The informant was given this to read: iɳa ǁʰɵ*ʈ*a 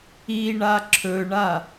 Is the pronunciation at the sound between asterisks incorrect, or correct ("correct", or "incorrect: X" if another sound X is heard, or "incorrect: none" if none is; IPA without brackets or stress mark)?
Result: incorrect: ɳ